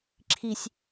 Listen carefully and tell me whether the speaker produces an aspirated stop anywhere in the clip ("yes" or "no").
yes